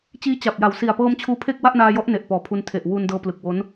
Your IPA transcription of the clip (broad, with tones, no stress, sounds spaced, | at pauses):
t͡ɕ iː˦˥ t͡ɕ a˨˩ p̚ j a˨˩ w s i˨˩ a̯ p ɤː˧ m t͡ɕʰ uː˦˥ pʰ e˥˩ k̚ w a˥˩ ʔ n aː˧ j ɔ˦˥ ʔ n e˨˩ ʔ p ɔː˨˩ pʰ u˧ n tʰ e˨˩ ʔ w u˧ n d ɤː˧ p l ɯ˨˩ k̚ w o˦˥ n